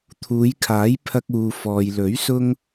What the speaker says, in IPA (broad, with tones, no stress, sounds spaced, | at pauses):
t̪ʰ uː˨˧ j kʰ aː˨˥ j pʰ ɐ˧ k̚ uː˨ f ɔː˨ j l ɵ˨˥ ɥ s ʊ˥ ŋ